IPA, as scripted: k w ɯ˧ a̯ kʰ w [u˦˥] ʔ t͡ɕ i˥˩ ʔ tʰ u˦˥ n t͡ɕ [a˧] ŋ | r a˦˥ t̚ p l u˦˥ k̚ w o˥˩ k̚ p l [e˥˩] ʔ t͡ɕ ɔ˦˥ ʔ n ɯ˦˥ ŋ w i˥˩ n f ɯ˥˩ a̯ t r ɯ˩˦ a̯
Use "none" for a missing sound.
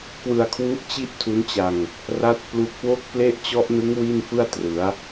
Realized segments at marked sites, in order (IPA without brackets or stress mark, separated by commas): u˦˥, a˧, e˥˩